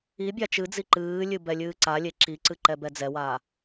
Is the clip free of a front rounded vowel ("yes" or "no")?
yes